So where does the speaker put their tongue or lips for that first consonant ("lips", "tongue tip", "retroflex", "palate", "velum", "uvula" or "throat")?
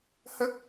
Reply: throat